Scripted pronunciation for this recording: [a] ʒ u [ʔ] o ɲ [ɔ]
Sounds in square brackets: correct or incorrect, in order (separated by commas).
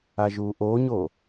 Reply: correct, correct, incorrect